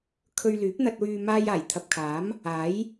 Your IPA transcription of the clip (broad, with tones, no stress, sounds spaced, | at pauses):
kʰ ɵ˨ ɥ l yː˨˥ p̚ n̪ ɐ˧ t̚ w yː˧ m aː˧ j aː˨˩ j t̪ʰ ɐ˨ p̚ kʰ aː˨˥ m | aː˨˥ j